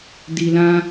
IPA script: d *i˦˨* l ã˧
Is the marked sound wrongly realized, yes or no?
yes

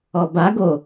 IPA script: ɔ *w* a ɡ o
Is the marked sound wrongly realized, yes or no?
yes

